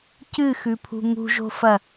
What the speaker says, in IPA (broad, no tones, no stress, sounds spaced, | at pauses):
c ɨ x ʉ pʰ ṳ ŋ ṳ ʒ o̤ f ɐ